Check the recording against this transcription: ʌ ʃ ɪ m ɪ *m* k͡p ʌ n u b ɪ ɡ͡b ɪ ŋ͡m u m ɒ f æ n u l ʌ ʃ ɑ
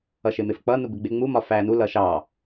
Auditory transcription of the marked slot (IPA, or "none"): f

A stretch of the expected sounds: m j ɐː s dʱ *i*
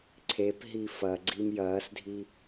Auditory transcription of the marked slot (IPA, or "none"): i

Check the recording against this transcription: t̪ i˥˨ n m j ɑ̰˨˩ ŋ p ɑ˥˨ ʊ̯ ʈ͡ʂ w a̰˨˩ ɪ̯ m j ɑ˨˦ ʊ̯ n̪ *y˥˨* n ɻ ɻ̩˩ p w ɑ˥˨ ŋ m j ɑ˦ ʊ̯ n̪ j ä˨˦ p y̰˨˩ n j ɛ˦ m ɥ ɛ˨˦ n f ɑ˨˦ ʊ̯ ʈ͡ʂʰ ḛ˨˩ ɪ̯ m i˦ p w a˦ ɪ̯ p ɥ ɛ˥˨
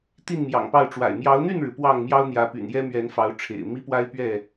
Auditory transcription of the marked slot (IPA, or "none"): y˥˨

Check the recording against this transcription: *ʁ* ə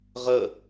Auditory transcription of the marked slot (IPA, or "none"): ʁ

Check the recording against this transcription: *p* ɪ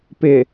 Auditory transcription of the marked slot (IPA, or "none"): p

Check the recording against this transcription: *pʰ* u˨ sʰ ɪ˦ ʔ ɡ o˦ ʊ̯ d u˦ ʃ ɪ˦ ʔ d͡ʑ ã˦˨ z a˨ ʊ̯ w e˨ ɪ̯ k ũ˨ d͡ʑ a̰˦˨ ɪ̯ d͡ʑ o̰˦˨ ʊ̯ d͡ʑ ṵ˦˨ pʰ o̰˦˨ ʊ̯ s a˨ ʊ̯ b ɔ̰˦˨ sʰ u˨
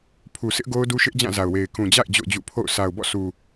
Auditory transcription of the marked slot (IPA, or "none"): pʰ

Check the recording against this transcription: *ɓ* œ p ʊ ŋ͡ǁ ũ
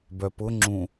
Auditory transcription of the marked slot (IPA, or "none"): b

